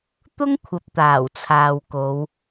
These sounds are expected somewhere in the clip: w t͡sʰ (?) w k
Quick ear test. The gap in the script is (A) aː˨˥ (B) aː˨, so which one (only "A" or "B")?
B